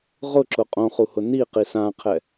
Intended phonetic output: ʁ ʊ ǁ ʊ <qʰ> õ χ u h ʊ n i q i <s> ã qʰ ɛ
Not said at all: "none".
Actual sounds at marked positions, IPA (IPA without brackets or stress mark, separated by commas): qʼ, s